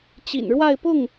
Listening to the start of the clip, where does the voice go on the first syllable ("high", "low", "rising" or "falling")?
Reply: low